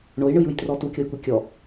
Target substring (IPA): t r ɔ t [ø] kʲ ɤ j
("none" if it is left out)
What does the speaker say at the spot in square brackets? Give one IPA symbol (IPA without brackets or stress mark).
u